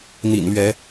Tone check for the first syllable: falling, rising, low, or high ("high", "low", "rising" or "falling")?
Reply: low